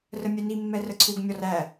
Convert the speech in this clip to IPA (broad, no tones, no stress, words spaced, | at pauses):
rəmʲɛni mːɛrəǀʰuɡ mʲɔræ